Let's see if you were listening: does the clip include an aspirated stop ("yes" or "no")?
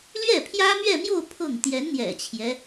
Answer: yes